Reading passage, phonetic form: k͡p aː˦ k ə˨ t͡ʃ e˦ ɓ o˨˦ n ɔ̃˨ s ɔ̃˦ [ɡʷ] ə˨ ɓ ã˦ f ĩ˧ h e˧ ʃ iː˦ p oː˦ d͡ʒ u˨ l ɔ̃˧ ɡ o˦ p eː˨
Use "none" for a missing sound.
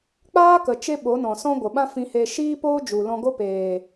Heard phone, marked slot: ɡʷ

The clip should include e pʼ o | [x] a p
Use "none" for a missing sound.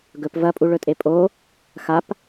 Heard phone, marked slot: x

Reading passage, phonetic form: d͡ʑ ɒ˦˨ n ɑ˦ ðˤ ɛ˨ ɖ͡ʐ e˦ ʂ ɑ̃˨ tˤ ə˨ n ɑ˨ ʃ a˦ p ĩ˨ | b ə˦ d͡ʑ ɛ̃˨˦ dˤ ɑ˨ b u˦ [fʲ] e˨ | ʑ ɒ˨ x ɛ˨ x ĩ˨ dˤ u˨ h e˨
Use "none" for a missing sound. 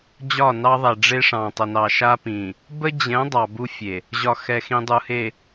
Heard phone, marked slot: fʲ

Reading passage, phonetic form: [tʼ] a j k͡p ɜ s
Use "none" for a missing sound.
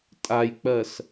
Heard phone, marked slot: tʼ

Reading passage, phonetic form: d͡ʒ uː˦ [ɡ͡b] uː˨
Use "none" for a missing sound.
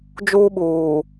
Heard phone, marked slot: ɓ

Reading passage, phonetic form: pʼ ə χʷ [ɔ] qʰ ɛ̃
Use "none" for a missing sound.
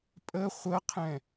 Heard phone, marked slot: ə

